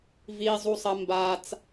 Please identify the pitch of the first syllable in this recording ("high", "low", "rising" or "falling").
high